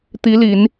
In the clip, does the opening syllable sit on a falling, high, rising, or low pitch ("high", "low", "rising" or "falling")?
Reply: rising